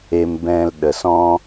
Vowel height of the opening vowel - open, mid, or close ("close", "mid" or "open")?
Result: mid